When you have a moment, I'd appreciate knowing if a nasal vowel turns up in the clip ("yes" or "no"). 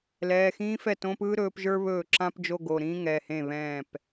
yes